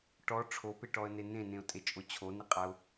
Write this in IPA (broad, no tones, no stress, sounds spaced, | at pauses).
ʈ ɔ ʈ͡ʂʰ o p e ʈ ɔ ə̯ n e n ẽ n ẽ ʊ̯ tʼ e t͡ʃʼ o t͡ɕʰ o n i qʼ a ʊ̯